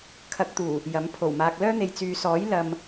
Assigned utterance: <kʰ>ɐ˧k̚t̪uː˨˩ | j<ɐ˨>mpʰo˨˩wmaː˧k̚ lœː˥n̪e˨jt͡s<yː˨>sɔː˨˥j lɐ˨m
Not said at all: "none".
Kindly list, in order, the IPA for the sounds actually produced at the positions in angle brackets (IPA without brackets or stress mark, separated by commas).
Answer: kʰ, ɐ˨˥, yː˨